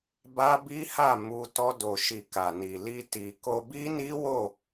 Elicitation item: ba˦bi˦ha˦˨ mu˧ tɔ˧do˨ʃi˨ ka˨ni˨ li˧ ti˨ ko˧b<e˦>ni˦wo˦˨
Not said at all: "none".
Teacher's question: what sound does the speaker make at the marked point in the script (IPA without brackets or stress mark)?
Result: i˦